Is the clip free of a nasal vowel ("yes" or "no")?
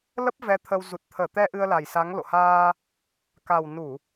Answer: yes